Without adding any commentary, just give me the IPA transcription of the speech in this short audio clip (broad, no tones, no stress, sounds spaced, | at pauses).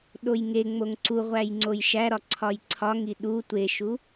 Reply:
ɗ o j ŋ e ŋ͡m o ŋ ǀ u ʁʷ æ j ŋ͡ǀ o j ʃ æ ɾ ɒ ǀʰ ɒ j ǀʰ ɒ ŋ i ɗ u tʷ e ʃ u